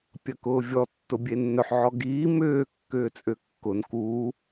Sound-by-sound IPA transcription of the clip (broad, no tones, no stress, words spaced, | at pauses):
pʲɐkʊːvʲɔ tːʊbʲenːœħ ʕɔɡiː mʏː kːʏːt͡sʼʏkːʊn kuː